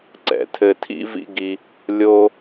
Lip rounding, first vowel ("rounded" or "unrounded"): unrounded